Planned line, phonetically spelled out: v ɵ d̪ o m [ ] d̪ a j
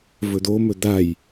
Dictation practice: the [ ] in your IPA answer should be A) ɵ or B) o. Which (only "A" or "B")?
A